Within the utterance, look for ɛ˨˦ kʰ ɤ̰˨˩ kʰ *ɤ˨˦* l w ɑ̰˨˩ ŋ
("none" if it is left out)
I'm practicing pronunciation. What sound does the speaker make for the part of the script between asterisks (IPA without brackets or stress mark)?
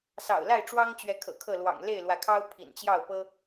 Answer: ɤ˥˨